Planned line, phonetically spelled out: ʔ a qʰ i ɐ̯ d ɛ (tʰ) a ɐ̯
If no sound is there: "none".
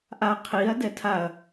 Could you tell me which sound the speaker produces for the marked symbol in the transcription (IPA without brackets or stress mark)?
tʰ